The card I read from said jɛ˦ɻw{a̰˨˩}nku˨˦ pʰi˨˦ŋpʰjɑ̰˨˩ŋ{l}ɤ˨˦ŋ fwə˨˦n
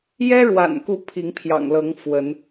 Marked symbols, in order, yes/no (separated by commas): yes, yes